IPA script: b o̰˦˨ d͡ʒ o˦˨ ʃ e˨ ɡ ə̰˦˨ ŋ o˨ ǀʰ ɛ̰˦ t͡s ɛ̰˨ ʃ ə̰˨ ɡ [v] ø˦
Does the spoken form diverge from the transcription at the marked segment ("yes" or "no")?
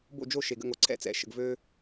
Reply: no